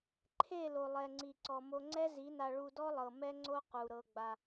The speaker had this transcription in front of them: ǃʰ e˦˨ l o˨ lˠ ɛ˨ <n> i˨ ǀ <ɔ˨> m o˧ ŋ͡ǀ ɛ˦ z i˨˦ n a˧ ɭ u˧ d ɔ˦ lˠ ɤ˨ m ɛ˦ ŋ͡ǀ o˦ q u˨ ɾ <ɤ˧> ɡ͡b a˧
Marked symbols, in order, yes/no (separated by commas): no, yes, yes